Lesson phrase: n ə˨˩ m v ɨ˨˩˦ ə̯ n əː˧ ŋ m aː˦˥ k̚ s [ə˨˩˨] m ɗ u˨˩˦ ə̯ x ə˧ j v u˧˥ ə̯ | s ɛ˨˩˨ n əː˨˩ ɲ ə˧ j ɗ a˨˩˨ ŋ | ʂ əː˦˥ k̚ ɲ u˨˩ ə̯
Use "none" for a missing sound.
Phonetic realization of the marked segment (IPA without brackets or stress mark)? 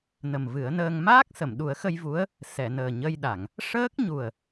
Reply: ə˨˩˨